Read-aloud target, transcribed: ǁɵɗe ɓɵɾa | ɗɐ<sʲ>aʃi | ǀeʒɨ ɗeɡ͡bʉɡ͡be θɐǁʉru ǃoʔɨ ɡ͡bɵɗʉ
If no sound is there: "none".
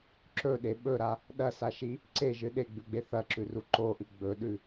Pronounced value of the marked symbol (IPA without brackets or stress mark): s